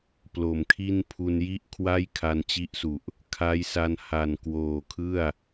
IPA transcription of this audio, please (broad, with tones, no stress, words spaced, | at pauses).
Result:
plo˨˩mkʰi˥˩n pʰu˧nji˥˩ʔkʰwa˥˩j kʰa˧nt͡ɕi˦˥ʔsu˨˩ʔ | kʰa˦˥jsa˧n ha˨˩nkwoː˨˩kʰɯ˥˩a̯